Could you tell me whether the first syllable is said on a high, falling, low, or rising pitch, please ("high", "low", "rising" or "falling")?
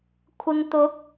low